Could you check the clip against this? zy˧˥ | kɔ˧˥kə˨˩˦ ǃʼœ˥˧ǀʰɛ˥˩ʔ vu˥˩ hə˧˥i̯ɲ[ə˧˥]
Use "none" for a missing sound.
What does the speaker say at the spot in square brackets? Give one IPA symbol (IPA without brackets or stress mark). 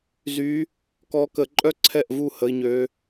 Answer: ø˧˥